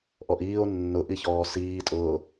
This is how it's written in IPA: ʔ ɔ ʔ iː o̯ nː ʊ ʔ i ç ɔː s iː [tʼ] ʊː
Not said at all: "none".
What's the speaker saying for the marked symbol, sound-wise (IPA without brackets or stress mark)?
tʼ